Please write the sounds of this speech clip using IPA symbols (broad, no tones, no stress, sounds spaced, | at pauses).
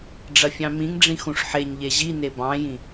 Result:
ɖ͡ʐ ɐ fʲ ɑ̃ m ĩ ŋ ɖ͡ʐ ĩ x ũ ʂ ħ e ɲ ʎ e ʑ i n e b ɑ̃ j ĩ